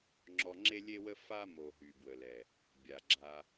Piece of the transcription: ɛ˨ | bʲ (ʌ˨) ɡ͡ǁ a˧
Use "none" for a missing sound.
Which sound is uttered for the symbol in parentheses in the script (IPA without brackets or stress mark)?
a˨